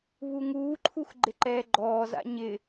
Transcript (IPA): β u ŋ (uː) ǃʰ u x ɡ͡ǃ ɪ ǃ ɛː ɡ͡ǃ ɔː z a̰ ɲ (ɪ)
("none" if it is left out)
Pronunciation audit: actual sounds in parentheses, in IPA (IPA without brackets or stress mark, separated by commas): uː, ɪ